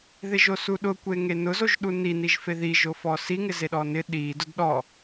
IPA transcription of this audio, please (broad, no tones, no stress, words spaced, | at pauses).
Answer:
ðɪʒosuɗʊ kʷeŋenʊ zoʒɗuni niʒfeði ʒofɔsi ŋɪzeɗɔnɪ ɗi dʊdɗɔ